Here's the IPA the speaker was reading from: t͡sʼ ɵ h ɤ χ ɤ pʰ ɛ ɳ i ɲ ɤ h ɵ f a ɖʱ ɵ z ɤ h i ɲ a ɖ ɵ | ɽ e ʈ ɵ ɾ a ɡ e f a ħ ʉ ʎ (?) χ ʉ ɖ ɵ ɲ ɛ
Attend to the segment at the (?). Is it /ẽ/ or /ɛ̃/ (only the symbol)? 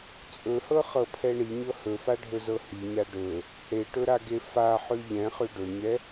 ɛ̃